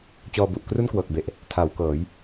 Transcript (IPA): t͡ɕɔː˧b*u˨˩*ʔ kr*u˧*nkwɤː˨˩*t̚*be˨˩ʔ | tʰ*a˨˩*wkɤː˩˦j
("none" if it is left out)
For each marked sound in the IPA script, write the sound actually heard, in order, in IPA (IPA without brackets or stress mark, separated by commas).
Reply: u˨˩, u˥˩, k̚, a˩˦